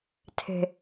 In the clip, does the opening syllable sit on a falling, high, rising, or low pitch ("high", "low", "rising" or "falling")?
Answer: low